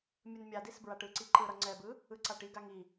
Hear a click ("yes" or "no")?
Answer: yes